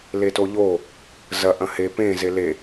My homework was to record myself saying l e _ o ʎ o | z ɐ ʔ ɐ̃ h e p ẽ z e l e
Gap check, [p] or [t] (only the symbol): t